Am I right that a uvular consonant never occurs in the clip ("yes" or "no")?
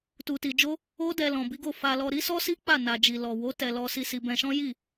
yes